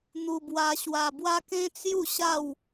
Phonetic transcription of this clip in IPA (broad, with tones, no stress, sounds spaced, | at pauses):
n̪ u˧ b w a˧ ɕ w a˧ b w a˦ k ẽ˦ t͡s j u˥˧ ɕ a˥˧ w